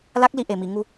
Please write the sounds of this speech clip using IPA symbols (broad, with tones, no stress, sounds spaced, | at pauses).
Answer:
l a˦˥ k̚ l i˧ ʔ e˨˩ m i˨˩˨ ŋ u˧